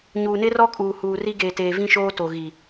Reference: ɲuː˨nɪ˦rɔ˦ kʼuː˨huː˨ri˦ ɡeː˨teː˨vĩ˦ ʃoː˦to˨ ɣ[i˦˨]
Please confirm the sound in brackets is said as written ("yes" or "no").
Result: no